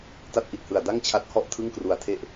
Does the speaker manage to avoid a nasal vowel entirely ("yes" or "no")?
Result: yes